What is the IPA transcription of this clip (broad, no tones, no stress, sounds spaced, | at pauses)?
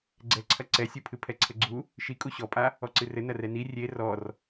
ɡ͡ǀ ɛ ǀʰ ɐ ǀ ɛ sʲ u pʰ ɨ pʰ ɛ ǀʰ ɘ ɡ͡ǀ u | ʃ i kʼ u ɕ ɔ pʼ a | ɔ ǀ ɨ r ɘ n ɐ r ɛ n i rʲ e r ɔ r